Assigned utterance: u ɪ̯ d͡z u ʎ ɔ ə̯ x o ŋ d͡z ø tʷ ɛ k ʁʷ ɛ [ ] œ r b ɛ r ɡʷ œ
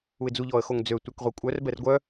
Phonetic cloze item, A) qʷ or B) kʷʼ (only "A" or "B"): B